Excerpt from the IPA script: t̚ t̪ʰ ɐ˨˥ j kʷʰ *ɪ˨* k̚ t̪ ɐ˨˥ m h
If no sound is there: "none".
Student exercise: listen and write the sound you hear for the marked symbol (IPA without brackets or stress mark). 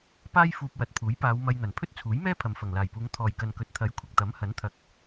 ɪ˨